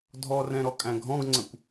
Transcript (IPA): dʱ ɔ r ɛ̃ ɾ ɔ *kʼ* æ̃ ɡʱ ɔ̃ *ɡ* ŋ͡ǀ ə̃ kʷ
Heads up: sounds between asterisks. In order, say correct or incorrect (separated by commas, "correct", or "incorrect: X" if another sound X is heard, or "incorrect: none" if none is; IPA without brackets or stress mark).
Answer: correct, correct